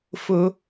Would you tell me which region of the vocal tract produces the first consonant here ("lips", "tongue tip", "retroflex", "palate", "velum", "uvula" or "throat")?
lips